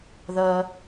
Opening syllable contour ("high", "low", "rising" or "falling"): low